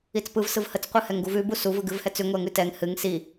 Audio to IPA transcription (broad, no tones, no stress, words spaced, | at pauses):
it͡spɯvsɯv hət͡s qʷɯhɛŋɡuvʉ busuvɯ ɡɨvhɛt͡sʉ ŋʷɛŋʉtɛŋ hɨŋ si